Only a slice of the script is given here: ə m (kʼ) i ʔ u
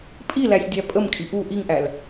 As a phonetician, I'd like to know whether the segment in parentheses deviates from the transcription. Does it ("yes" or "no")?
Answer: no